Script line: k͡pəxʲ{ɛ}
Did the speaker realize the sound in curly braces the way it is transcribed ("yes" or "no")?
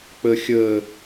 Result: no